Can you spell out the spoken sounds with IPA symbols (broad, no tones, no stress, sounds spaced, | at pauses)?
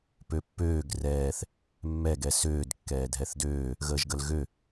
p ø pː øː ɡ r ɛː θ | mː ɛ ɡ ɛ s øː d kː ɛː dʱ ɛ θ d øː | ɣ əː ʒ ɡ ə l ɣ ø